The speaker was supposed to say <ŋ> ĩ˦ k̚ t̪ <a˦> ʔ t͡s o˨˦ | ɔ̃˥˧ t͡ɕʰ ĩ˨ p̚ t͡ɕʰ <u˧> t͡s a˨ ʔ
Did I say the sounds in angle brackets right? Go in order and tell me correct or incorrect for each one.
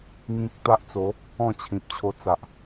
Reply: correct, correct, incorrect

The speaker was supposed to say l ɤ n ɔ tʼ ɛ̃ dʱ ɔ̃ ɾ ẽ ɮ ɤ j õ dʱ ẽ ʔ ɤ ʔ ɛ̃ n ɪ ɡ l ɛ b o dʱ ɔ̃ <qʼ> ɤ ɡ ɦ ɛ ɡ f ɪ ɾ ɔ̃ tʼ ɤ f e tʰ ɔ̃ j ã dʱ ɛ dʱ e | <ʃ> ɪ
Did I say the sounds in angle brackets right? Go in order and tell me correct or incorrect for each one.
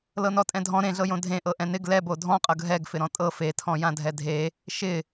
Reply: correct, correct

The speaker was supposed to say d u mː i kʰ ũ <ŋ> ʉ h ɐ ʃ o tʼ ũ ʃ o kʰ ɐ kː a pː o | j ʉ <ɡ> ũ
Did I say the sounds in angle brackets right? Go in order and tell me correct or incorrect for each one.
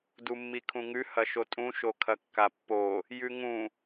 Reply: correct, incorrect

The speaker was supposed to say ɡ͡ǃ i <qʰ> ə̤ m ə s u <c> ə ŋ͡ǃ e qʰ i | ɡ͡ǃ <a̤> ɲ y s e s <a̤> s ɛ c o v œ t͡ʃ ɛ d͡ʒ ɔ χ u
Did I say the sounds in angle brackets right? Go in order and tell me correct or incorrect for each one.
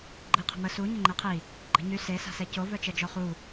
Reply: correct, incorrect, incorrect, correct

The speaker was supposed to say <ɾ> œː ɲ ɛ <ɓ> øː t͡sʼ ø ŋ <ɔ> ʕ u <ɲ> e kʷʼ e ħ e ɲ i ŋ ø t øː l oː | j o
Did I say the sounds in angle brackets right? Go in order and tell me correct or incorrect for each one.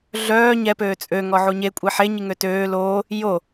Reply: incorrect, incorrect, correct, correct

